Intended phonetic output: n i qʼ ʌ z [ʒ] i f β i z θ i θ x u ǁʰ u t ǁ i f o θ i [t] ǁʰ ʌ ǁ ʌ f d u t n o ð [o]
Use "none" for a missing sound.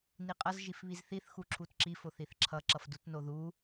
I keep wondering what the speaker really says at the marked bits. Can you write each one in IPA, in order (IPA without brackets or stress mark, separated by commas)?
ʒ, θ, u